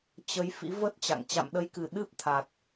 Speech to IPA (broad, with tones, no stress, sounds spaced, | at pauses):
t͡ɕ ə˨˦ j f ḭ˧˥ v ə˦˥ t̚ t͡ɕ a̰˧˨ ŋ t͡ɕ a̰˧˨ m ɗ ə˨˦ j k ɨ˨˩ ɗ ɨ˦˥ p̚ t̪ʰ a˨˩ t̚